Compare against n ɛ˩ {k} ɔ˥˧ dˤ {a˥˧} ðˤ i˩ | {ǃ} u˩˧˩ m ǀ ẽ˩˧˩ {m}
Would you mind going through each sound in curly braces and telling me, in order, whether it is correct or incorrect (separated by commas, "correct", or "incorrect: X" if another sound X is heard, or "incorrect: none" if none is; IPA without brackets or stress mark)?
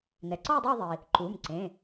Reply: incorrect: ǀ, correct, correct, incorrect: none